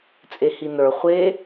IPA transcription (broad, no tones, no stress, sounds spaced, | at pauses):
t͡sʼ e h i n ə˞ χʷ e